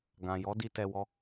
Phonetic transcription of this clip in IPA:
ɡ ã˨ j ɔ˨˦ d i˧ t ɛ˧ w ɔ˦

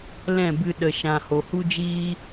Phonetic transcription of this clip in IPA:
l ɛ̃˦˨ b ɨ˧ ɗ ə˨ ʃ ã˨ h o˨ h u˦ d͡ʒ iː˦

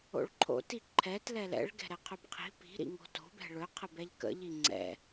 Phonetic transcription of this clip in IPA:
o̰ ɭ ǃʰ o̰ t i ǃʰ ɛ t l ɛ l ɛ̰ ɭ ɡ ɛ̤ ɾ ɛ qʰ ɵ b qʰ i̤ p i̤ ɾ ḭ ŋ o̤ t o̤ b ɛ̤ ɭ ɵ qʰ ə b ɛ ʎ k ə̰ ʎ i ŋ͡ǀ ɛ̰

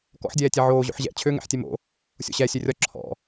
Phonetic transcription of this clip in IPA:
k ɔ̰ ħ dʲ ɛː tʲ ɛ ʕ oː ʑ o̰ ħ ʑ ɛ̰ t͡ɕʰ ø ŋ ɛ̰ ħ tʲ ɛ m o̰ | sʲ o̰ ɕ ɛ sʲ ø rʲ ɒ ǁʰ ɔ̰

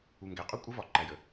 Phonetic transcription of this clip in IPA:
u˨ ŋ ɡ æ˨ qʼ u˦ kʷʼ ə˦ v ɒ˨ ǃ æ˨ j ə˨

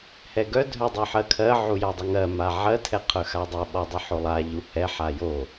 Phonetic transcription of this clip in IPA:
h ɛ ɡ œ dʱ œ dˤ œ ħ ɜ kʰ ɜ ʕ u j a dˤ ʌ ŋ ɜ m a ʕ ɜ tʰ ɛ qʰ œ x a dˤ ɛ ɓ ɔ dˤ ʌ ħ o lˠ a ʎ u h ɛ ħ a j o

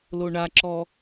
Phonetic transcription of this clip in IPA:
l o ɳ a ǁ ɔ

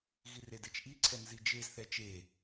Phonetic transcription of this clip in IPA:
ɣ i r e d e t͡ʃ ʔ i ǀʰ ɛ n z i d͡ʒ e z θ ɛ t͡ʃ e

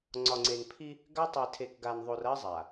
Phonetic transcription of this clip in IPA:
ŋ͡ǀ ɒ˨ ŋ͡ǀ e˨ n pʰ i˦ | ɡ a˦ tˤ e˨ tʰ e˨ k ɡ a˨ n ðˤ o˨ r ɐ˦ zˤ a˨

